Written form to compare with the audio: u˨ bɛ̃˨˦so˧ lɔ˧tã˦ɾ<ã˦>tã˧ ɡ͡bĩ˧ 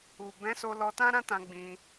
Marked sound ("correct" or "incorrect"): correct